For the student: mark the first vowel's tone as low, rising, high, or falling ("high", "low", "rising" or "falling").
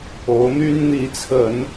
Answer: rising